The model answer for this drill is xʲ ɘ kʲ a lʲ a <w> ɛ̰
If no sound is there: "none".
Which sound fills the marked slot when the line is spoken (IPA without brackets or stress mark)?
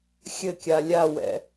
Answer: w